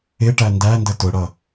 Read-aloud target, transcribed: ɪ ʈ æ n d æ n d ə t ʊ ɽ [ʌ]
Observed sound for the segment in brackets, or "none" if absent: ʌ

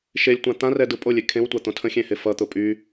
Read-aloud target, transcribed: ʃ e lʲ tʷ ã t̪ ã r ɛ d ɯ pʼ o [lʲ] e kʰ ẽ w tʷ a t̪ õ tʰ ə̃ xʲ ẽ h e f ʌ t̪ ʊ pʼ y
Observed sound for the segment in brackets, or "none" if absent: lʲ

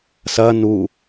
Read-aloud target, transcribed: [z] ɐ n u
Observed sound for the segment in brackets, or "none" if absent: s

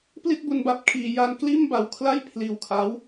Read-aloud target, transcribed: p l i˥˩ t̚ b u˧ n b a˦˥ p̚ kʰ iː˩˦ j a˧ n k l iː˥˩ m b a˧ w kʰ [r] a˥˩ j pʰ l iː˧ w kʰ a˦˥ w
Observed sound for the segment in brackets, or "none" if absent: l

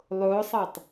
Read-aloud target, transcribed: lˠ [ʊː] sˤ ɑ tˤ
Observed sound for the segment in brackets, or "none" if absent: ʊː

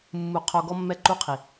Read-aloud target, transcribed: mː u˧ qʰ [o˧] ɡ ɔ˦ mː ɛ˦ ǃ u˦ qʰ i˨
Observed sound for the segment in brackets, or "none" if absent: o˧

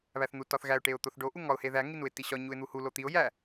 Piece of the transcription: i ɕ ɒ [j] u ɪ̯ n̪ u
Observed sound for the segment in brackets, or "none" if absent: ɲ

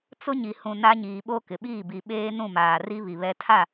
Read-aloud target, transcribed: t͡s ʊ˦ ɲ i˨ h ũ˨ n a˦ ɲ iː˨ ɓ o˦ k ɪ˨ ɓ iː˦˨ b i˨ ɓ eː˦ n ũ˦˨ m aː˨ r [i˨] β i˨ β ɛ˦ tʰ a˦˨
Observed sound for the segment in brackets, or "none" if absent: i˦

